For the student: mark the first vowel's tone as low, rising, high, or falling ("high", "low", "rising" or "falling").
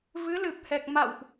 rising